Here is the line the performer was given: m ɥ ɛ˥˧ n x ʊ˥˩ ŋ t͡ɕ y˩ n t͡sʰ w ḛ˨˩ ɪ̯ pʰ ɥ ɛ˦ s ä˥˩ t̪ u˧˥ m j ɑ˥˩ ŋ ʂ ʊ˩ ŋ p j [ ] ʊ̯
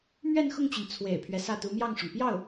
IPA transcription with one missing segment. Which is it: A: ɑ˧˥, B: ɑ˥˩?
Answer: B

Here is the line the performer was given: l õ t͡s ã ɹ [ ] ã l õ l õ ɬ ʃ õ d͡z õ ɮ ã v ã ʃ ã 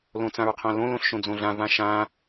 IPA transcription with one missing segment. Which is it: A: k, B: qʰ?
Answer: B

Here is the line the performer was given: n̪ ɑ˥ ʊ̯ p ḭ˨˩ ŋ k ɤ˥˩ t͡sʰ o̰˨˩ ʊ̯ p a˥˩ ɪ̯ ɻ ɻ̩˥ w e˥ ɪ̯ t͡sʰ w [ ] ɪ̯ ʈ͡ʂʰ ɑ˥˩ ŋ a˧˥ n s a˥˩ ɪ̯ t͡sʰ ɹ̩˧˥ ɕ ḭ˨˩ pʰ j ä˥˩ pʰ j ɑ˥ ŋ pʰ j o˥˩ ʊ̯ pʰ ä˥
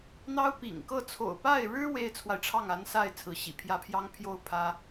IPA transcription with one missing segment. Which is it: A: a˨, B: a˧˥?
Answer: A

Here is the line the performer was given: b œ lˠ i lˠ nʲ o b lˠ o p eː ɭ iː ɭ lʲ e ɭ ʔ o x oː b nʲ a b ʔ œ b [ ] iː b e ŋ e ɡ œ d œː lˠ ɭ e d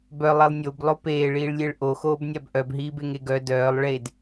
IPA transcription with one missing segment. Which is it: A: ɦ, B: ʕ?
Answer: A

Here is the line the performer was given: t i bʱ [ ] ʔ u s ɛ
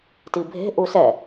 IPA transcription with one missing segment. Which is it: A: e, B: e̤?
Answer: B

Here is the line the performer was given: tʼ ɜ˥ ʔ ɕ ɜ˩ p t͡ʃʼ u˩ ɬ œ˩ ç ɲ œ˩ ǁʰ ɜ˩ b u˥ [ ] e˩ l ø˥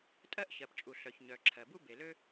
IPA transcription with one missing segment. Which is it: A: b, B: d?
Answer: A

